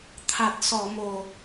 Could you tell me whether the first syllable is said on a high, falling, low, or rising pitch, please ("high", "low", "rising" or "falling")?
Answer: low